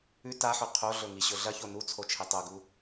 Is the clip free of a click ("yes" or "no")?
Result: yes